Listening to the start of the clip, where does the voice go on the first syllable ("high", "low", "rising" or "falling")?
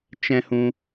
high